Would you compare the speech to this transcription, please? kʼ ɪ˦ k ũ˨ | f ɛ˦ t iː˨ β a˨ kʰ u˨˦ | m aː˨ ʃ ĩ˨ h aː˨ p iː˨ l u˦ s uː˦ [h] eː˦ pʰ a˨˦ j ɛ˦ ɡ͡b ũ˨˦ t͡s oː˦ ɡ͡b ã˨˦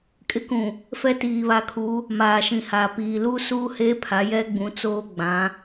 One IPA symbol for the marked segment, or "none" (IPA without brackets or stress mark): h